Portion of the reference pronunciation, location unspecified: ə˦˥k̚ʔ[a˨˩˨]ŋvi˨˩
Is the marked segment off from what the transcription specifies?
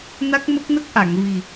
no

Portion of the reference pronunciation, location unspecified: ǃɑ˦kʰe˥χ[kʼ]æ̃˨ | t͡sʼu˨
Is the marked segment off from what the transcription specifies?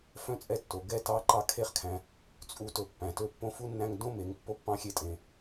yes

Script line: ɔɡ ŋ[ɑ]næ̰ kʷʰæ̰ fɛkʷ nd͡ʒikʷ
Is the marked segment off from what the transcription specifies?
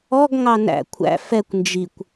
no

